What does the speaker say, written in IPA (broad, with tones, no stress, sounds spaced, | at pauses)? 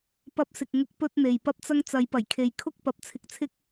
p ɐ˥ p̚ s ɪ˧ k̚ ŋ ʊ˥ k̚ p ɵ˥ t̚ n̪ e˨ j p ɐ˥ p̚ t͡s ɐ˥ ŋ t͡s ɐ˨˥ j p ɐ˨˩ j kʰ e˨ j kʰ ʊ˥ k̚ p ɐ˨˥ p̚ t͡sʰ ɪ˧ k̚ t͡sʰ ɪ˥ k̚